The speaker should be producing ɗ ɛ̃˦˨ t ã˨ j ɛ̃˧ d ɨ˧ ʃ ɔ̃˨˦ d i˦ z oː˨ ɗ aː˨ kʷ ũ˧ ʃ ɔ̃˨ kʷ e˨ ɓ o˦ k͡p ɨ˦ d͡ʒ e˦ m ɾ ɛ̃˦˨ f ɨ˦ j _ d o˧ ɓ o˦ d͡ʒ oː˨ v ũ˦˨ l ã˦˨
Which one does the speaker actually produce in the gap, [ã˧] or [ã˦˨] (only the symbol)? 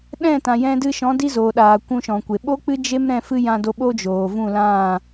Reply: ã˧